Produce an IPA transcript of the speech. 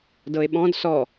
d ɤ e̯ ɓ ɔ̃ d s ɔ

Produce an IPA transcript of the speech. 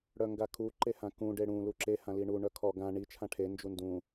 ɽ œ ŋ ɡ a kʰ u ǃ e h ã k ũ ɖ e ɽ ũ l u ǁ e h ã l i ɳ u ɳ œ kʰ ɔ ɡ ã ɳ i t͡ʃʰ ã ʈʰ e n d͡ʒ u n d ũ

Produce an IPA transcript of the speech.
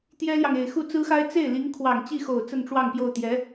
t̪ j ɛ˥ l j ɑ˨ ŋ e˨˩ ɪ̯ x u˥˩ t͡s ɹ̩˥ x a˥ ɪ̯ t͡s e˥˩ ɪ̯ l i˧˥ ŋ kʰ w ɑ˨˩ ŋ t͡ɕ i˥˩ x o˨˩ ʊ̯ t͡s ə˥˧ n ʈ͡ʂ w ɑ˥˧ ŋ p j o˥˩ ʊ̯ t̪ j ɛ˧˥

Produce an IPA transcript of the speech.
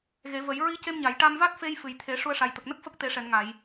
ɣ e˨˩˦ v ə˨˩˦ j ɹ i˧˥ c e˧ m ɲ a˨˩˨ j ʈ a˧ m v a˦˥ t̚ f e˧ j f ɨ˨˩ j t̪ʰ e˨˩˦ ʂ u˧ ə̯ ʂ a˨˩ j t̪ ə˨˩ k̚ n ə˦˥ k̚ f ə˦˥ k̚ t̪ e˨˩˦ ʂ ɛ˨˩˨ n ŋ a˨˩˨ j

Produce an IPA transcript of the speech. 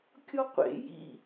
kʲ ɔ qʷ ḛ j ḭ

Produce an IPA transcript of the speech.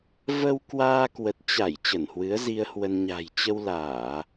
v ə˧ w k w aː˧ k w ə˨˩ t̚ t͡ɕ a˧˩ j t͡ɕ ə˧˩ n h w ɨ˨˦ ə̯ z i˧ ə̯ h w ə˧ n ɲ a̤˨˩ j t͡ɕ ə˧ w l aː˧˩˨

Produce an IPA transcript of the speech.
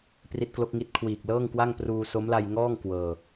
p r i˦˥ t̚ k l o˦˥ k̚ ŋ i˦˥ t̚ kʰ w iː˨˩ k̚ l ɤː˥˩ ŋ k w a˥˩ ŋ p r uː˧ s o˦˥ m l a˧ j ŋ ɔː˥˩ ŋ k w ɤː˧

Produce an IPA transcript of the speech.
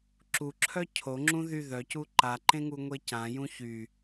ǁ u ǁʰ œ cʰ o ŋ͡ǁ ũ ð y ð œ c u ǃ a ǃ ẽ ŋ u ŋʷ e c ã j ũ ç y

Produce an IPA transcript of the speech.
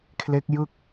kʰ l e˦˥ k̚ j ɯ˥˩ k̚

